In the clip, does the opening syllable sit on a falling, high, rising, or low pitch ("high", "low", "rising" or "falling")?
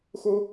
high